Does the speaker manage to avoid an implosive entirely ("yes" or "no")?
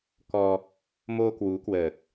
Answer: yes